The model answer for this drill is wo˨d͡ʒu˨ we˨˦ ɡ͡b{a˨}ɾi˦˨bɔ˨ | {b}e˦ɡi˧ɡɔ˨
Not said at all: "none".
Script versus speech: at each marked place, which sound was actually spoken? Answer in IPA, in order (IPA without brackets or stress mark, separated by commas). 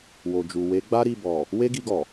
a˦, w